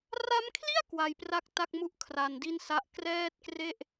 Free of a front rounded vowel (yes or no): yes